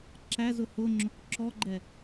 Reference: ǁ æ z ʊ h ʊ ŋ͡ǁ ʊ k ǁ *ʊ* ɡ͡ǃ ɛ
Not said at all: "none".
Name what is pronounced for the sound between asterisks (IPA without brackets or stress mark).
ɔ